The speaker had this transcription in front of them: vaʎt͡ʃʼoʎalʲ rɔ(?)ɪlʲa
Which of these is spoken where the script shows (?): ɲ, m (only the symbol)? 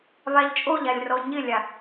ɲ